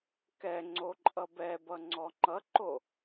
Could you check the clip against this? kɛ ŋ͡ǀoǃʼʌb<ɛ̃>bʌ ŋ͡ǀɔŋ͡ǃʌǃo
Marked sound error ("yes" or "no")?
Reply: yes